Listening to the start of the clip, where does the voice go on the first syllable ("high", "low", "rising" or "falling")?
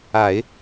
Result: low